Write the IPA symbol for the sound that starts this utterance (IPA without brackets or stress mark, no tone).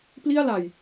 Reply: p